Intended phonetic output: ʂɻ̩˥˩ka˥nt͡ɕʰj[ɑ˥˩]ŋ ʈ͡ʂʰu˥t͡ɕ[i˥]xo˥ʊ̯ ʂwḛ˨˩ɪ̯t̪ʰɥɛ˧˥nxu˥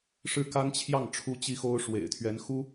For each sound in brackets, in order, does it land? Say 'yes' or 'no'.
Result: yes, yes

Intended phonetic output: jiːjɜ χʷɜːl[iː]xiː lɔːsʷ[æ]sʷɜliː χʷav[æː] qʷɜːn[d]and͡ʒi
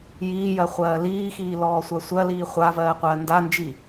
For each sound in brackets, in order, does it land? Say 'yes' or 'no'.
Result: yes, no, no, yes

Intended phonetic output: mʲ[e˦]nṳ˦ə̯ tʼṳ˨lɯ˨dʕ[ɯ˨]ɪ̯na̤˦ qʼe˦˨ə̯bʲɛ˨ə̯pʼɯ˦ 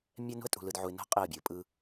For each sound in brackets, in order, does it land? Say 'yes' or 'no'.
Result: no, no

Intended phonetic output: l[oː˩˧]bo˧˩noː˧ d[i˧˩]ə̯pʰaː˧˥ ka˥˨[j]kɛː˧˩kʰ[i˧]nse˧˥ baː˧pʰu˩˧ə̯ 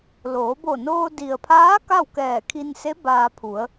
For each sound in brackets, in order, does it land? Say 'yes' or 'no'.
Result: yes, no, no, yes

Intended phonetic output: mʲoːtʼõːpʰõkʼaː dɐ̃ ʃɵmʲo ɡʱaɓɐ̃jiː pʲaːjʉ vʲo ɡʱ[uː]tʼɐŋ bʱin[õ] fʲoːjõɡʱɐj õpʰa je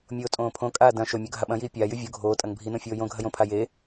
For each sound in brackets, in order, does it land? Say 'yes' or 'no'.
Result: no, yes

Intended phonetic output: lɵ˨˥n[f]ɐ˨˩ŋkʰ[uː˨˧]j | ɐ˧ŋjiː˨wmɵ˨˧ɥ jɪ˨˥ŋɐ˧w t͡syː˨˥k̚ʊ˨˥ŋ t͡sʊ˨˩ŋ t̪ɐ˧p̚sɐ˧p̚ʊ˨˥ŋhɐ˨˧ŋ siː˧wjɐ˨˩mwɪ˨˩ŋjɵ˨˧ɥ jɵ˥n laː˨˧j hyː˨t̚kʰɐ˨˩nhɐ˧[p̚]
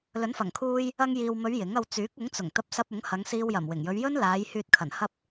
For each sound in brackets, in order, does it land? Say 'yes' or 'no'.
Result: yes, no, yes

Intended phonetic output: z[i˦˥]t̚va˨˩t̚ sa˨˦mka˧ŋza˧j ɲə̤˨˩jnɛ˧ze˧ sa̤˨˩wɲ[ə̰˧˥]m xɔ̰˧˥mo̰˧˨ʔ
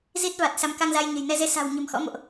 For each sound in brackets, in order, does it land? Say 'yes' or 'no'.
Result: yes, no

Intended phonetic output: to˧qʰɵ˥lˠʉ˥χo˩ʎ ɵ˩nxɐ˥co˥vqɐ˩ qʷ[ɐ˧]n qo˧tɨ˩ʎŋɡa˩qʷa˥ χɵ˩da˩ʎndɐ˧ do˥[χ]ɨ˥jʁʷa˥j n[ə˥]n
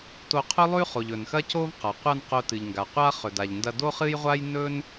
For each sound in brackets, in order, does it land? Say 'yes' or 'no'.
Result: yes, yes, no

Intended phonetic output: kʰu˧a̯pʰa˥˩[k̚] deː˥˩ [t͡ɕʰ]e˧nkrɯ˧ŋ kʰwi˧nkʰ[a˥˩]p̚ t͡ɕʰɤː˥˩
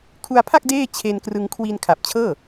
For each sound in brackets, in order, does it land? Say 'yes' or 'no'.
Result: yes, yes, no

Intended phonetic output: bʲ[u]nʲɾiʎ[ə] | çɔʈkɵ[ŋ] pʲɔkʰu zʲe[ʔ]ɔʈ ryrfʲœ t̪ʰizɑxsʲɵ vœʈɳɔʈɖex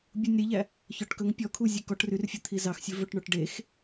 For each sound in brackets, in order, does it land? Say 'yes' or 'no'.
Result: yes, no, yes, no

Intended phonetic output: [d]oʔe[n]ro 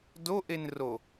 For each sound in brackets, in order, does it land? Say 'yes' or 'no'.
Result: yes, yes

